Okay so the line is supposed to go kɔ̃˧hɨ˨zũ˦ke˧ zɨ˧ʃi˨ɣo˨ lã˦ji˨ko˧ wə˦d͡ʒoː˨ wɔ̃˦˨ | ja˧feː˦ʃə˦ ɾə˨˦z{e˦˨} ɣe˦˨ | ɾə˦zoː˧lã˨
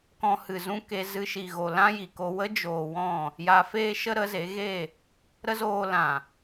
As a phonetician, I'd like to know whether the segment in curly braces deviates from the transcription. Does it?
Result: yes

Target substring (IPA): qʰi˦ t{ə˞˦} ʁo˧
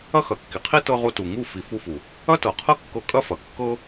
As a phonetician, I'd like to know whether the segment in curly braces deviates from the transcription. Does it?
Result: yes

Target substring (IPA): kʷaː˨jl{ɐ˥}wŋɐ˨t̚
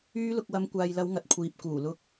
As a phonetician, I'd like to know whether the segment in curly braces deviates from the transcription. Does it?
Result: yes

